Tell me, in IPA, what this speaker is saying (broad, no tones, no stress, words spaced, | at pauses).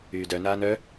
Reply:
yːdœnaːn œ